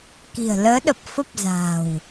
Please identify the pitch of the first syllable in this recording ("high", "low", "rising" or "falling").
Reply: low